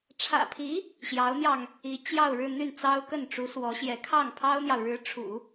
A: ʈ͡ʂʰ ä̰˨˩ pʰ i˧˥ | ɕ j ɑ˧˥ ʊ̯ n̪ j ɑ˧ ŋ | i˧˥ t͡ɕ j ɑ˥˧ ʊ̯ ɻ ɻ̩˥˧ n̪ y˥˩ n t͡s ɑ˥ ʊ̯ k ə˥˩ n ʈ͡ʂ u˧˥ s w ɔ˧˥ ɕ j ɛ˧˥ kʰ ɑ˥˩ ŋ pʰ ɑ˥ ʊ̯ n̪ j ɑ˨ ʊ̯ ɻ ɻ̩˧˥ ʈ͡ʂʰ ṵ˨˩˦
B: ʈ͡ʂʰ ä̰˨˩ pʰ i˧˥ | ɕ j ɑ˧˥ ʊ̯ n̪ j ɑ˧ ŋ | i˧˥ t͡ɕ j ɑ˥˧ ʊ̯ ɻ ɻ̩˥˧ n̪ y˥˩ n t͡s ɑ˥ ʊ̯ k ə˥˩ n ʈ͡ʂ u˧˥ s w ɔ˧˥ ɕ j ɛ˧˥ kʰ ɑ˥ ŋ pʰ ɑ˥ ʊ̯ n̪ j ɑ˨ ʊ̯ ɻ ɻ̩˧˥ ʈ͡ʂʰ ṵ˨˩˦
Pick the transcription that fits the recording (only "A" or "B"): A